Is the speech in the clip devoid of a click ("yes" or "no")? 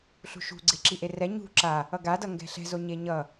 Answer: no